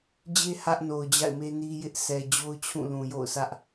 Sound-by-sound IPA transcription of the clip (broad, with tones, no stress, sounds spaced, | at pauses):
d͡ʑ e˦ h ä˦ ʔ n o˨ ʊ̯ d͡ʑ a̰˦˨ ɪ̯ m e˦ n i˦ j ɪ˦ ʔ s ɛ˨ d͡ʑ o˦ ʊ̯ t͡ɕʰ ũ˦˨ l ũ˨ j o̰˦˨ ʊ̯ sʰ ä˦ ʔ